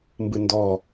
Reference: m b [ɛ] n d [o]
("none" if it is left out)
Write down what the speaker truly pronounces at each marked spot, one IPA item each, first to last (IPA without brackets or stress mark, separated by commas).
ɨ, ɔ